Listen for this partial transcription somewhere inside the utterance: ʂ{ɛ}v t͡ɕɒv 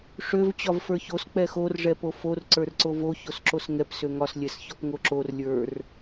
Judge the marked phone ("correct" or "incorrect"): incorrect